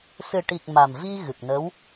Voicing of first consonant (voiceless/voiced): voiceless